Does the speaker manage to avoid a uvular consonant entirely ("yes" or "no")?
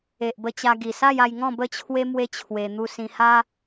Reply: yes